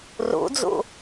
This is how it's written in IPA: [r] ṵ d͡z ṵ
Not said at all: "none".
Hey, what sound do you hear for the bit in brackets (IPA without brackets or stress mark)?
r